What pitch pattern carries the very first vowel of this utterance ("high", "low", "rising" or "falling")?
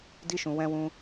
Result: high